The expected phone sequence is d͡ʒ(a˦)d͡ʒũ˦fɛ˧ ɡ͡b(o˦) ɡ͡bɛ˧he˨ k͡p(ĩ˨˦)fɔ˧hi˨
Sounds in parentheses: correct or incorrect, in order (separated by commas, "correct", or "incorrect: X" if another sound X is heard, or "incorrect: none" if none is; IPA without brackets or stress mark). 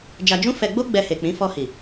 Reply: incorrect: a˧, correct, correct